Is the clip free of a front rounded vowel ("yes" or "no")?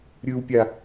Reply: yes